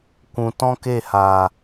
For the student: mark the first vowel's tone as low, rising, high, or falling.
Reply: low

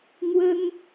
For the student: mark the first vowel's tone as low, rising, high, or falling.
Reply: high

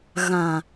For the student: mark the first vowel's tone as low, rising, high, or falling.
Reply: low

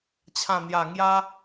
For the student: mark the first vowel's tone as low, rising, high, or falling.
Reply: low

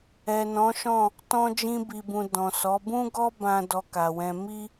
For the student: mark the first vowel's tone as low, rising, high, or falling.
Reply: low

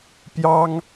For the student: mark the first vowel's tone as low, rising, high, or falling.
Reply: high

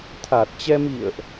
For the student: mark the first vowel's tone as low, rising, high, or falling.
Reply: low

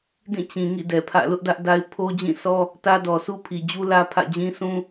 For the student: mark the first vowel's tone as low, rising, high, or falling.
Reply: falling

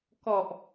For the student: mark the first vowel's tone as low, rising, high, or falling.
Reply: low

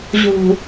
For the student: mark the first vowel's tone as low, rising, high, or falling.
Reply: low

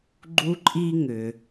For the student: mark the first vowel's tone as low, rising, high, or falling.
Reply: high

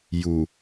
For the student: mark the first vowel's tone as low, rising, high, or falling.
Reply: low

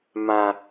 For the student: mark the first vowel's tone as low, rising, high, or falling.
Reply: low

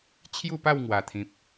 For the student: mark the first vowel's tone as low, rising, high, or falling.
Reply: falling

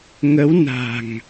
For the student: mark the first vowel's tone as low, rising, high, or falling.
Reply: rising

